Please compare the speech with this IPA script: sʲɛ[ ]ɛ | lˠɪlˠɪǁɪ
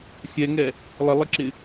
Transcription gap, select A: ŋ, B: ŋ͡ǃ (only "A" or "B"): A